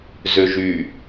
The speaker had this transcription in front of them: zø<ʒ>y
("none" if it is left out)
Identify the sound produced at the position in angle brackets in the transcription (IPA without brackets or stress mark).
ʒ